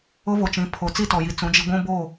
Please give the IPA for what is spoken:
ʊ˦ v o˨ t͡ʃ ĩ˨˦ pʰ o˨ t͡s i˦ t ɔ˨ j i˨ t͡s ũ˨˦ d͡ʒ i˦ ɡʷ ũ˦ b o˦˨

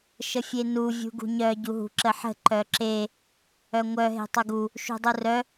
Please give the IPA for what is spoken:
ʃ ə fʲ e n u vʲ ṳ ɡ ṳ ɲ œ ɟ u ɦ ṳ ǁ ə ħ ə̤ ǃ œ ǁ e | œ ŋʷ œ ɦ e̤ tˤ u ɡ u | ʃ ṳ dˤ u r œ

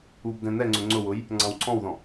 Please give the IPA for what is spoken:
u b d ɛ̃ n̪ ɛ ŋ͡ǀ ʊ ŋ͡ǀ ʊ w ʊ j | ŋ͡ǀ ɑ̃ w ǀʰ ɔ̃ w ð ɔ̃

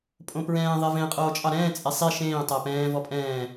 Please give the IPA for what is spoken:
pʼ õ p ɹ ɛ̃ː ðˤ ɛ v ẽ qʼ oː t͡ʃʼ ɑ ɾ ɛ̃ː t͡sʼ ɛ sˤ i ʃ ẽː tˤ æ p ɛ̃ː v ɔ pʼ ɛ̃ː

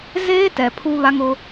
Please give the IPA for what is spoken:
z eː˦ t ɛ˨ pʰ u˦ β a˦ ŋ ʊ˦

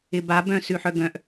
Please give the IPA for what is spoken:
ɪ b a b œ̃ s ʉ ħ œ ɡ œ̃ ʔ

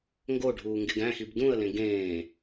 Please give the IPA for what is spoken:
ŋ ɡ o ɖʱ uː ŋ ɡ e ɡ æ̃ x i b d ũ ə̯ l ẽ ɡ ẽː

